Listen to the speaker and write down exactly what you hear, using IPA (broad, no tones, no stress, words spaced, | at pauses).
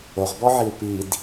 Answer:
oʁbɔʕiu̯ pid